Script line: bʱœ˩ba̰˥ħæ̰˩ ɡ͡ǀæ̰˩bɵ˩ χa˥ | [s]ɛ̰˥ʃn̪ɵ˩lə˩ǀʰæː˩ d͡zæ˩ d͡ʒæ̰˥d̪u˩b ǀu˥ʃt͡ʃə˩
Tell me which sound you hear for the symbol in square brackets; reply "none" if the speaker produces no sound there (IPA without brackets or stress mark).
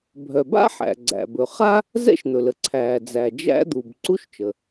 z